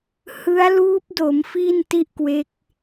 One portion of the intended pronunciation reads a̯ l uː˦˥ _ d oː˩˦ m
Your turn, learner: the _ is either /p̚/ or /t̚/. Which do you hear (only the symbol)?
p̚